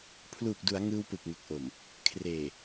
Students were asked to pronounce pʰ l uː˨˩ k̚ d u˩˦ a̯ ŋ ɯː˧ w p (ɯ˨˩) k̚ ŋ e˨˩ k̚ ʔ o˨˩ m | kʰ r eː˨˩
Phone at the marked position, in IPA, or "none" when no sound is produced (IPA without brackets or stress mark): ɯ˨˩